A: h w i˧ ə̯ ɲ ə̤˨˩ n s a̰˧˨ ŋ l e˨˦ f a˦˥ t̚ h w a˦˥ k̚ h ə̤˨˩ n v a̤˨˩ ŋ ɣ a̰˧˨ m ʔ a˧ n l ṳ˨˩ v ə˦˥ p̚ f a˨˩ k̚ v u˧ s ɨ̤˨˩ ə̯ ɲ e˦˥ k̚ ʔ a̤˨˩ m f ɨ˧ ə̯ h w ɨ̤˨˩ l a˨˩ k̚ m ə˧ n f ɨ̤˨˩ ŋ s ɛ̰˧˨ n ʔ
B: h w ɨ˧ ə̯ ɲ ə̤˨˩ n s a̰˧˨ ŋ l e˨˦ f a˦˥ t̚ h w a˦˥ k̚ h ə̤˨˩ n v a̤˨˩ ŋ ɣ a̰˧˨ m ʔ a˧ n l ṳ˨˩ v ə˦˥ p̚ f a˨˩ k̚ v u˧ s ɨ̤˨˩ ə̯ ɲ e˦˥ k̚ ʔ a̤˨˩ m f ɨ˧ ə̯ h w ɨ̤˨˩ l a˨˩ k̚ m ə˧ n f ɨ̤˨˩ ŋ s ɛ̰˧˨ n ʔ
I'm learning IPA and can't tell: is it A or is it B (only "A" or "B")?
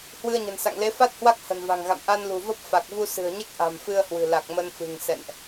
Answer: B